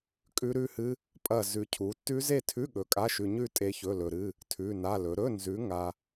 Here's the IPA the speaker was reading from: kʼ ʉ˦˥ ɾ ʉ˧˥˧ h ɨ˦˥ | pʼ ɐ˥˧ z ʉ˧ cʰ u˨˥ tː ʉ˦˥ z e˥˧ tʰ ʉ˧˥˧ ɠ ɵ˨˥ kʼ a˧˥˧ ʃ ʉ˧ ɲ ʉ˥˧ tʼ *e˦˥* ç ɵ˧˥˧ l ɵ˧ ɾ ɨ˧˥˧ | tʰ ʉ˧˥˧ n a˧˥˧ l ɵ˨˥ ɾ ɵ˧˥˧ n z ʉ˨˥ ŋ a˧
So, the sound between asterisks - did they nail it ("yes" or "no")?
yes